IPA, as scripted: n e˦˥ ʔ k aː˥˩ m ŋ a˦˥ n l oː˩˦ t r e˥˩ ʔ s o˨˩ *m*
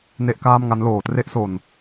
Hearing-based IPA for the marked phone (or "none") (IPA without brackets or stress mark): n